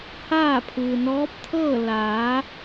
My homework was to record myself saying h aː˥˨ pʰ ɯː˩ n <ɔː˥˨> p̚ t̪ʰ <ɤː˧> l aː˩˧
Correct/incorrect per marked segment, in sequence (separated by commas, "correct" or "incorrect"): incorrect, incorrect